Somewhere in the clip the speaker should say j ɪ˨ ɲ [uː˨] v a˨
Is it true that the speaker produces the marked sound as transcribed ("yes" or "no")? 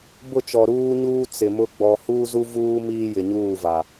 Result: no